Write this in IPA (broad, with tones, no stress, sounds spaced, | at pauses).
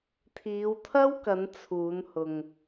t̪ʰ iː˨˧ w t̪ʰ ɐ˥ w k ɐ˨˧ n t͡sʰ uː˨˧ n h ʊ˨ ŋ